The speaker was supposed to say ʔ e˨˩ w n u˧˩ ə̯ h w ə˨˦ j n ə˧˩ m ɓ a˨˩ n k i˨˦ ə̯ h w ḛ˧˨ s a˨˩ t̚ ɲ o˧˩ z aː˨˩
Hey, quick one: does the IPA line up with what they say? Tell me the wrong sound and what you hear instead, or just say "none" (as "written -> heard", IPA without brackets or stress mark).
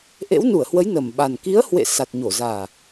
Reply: e˨˩ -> ḛ˧˥